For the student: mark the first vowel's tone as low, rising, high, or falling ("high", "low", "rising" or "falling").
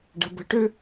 low